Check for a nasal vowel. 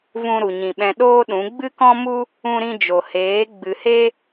present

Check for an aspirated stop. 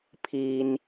present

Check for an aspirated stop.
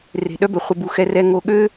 absent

